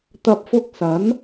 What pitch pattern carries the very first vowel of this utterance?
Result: low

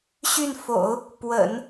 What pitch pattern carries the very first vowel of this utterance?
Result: falling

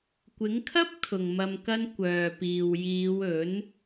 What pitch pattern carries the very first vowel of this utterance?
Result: rising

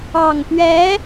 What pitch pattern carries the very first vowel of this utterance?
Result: low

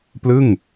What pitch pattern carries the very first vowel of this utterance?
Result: falling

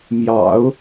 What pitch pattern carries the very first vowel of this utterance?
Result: low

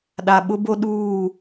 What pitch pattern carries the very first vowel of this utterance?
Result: low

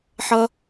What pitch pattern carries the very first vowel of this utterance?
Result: high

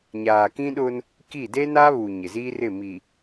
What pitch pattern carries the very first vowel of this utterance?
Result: low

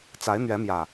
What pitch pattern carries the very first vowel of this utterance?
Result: rising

